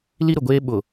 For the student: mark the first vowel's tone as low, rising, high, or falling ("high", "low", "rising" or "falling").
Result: high